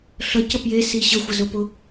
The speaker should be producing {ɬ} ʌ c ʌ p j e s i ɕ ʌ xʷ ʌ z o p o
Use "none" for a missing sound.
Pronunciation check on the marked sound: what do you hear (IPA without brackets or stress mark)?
ɬ